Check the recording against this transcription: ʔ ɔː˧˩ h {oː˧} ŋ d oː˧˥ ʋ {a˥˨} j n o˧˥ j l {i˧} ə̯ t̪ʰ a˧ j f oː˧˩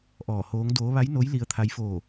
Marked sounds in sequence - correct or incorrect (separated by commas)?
incorrect, incorrect, correct